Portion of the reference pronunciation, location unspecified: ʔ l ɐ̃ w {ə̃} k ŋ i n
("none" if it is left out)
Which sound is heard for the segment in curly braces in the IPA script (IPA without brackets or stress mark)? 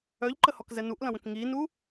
ə̃